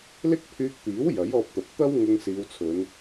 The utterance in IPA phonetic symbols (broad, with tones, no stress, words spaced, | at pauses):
lɪ˥k̚pʰyː˧k̚t̪iː˨˥w jɐ˨˥jɔː˧p̚t̪ɐ˨p̚ t̪ɐ˥w ŋʊ˧ŋ siː˨˧wt͡sʰɵ˨˧n